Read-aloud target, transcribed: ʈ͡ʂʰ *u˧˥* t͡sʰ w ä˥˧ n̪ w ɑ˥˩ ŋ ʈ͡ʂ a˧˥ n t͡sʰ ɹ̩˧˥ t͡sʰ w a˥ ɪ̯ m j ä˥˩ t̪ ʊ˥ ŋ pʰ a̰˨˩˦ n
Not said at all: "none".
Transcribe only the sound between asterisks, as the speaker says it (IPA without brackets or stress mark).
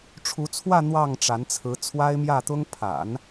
u˧˥